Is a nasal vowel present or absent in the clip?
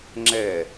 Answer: absent